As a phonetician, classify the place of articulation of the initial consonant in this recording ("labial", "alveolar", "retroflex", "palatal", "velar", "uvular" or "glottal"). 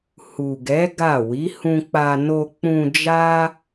glottal